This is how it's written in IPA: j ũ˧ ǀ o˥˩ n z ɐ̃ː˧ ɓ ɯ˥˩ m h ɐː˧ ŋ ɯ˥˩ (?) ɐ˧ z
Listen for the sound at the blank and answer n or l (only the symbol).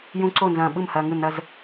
n